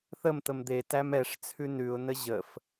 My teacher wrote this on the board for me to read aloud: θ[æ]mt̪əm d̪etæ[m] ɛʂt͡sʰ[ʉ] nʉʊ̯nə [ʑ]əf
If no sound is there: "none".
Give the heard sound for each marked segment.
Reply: ə, m, ʉ, ʑ

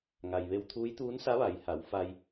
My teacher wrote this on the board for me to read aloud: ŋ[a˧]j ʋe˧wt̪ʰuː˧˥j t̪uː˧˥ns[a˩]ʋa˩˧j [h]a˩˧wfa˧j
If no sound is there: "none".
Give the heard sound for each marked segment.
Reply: a˩, a˧˥, h

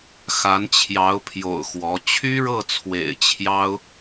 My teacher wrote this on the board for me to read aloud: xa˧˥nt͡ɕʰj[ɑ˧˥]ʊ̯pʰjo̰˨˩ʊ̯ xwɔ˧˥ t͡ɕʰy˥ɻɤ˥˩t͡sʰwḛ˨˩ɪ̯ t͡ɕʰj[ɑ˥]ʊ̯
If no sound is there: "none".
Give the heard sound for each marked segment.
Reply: ɑ˧˥, ɑ˥

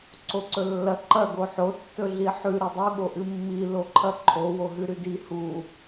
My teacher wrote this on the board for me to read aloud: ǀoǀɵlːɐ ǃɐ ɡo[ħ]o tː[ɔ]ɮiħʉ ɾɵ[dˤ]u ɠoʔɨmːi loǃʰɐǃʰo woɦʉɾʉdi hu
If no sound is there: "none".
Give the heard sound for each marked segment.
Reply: ħ, ɵ, dˤ

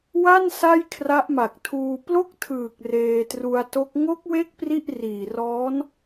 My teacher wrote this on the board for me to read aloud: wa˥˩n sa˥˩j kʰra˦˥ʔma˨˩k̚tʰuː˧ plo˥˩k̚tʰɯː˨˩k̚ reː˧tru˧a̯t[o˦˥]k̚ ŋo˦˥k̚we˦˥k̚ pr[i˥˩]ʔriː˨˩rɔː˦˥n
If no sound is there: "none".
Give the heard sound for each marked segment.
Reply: o˦˥, i˥˩

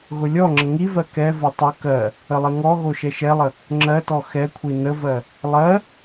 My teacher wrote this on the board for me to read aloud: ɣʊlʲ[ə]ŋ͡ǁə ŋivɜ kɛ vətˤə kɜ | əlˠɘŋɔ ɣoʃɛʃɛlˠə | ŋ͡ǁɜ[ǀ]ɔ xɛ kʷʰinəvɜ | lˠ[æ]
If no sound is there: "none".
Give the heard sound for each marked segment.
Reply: ɔ, t, ɜ

